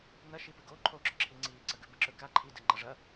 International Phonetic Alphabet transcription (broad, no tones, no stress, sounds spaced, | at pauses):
n ɐ ʃ i p ɨ ɡ o ǃʰ o ɡ͡ǁ ɵ ǁʰ i ŋ͡ǀ iː ǀ ɐ ɡ ʉ b ɨ ǁ ɵ k a ǃʰ i d ɨ ŋ͡ǃ ɐ ʐ ɐ